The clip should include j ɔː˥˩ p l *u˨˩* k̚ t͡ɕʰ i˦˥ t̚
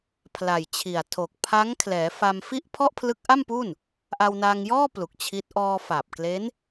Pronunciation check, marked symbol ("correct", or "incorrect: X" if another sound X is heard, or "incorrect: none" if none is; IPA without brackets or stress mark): correct